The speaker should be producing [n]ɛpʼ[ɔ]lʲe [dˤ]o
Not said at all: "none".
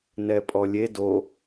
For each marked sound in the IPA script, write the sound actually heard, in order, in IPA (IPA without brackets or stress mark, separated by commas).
n, ɔ, d